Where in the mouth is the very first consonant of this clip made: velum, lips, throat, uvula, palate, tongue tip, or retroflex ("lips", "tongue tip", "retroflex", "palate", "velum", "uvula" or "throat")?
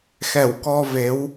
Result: velum